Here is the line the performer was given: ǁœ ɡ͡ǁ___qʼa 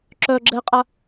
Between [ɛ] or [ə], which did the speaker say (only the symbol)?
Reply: ɛ